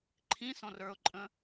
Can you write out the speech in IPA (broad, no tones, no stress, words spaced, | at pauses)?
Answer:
ǃʰĩsɔ̃r ə˞ʊ̯ǃʼə̃